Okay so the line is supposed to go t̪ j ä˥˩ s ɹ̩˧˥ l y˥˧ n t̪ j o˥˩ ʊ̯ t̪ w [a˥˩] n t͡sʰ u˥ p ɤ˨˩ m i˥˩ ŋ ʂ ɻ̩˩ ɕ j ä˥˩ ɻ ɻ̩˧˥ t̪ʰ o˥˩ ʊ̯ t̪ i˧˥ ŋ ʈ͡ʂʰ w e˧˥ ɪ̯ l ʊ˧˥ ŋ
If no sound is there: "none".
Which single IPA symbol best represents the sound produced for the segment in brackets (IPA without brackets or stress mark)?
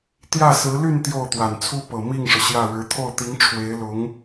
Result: a˨˩